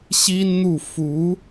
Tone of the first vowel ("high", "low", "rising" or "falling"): high